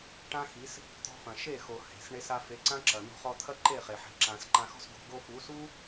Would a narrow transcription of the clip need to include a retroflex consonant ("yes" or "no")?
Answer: yes